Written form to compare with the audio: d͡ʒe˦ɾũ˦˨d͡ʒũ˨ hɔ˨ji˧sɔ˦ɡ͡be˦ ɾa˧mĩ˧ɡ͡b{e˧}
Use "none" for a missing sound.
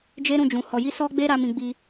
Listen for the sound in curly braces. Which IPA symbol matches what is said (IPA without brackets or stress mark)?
i˧